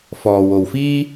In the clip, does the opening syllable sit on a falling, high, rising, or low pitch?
low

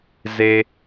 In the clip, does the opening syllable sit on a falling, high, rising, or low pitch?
low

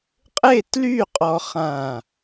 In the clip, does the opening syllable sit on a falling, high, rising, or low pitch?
falling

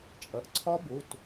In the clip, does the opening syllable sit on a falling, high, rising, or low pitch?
low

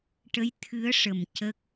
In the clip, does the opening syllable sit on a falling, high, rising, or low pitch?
rising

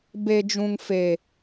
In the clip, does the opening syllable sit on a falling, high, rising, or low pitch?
high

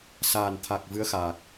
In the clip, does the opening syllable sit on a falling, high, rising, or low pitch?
low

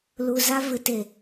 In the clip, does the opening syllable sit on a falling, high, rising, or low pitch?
low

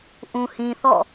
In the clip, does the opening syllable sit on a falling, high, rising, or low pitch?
low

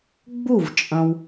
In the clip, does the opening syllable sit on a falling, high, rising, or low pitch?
falling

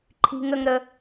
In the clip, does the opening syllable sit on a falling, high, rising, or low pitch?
high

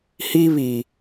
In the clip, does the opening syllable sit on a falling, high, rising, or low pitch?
high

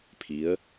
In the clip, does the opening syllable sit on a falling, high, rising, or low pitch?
rising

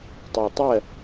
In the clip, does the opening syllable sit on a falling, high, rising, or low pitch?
low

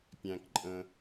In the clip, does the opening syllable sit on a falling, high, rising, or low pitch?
low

